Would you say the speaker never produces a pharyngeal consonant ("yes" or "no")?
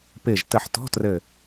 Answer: no